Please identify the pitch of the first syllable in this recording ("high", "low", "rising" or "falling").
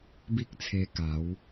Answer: high